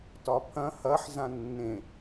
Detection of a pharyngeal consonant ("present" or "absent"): present